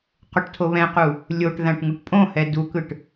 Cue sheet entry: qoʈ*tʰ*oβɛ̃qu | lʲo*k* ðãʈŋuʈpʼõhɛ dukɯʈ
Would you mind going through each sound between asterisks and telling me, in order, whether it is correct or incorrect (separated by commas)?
correct, incorrect